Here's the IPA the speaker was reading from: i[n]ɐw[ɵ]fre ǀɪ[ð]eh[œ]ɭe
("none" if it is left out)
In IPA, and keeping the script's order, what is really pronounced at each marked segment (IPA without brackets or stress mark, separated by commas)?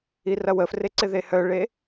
r, ə, ð, œ